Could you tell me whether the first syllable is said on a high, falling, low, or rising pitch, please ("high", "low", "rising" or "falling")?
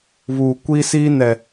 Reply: low